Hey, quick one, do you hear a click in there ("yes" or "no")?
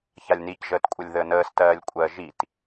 no